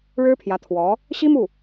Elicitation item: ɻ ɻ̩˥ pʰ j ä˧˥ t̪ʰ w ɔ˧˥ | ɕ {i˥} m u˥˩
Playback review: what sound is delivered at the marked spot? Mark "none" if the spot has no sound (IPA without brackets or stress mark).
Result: i˥